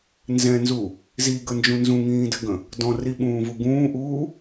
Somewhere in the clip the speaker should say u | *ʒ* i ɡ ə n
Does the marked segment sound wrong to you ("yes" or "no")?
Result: yes